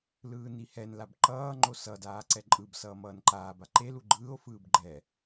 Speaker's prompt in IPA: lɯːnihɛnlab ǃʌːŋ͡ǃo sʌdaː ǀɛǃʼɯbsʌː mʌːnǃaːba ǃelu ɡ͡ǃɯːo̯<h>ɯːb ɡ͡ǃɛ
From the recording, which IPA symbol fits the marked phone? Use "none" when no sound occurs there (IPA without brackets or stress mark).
f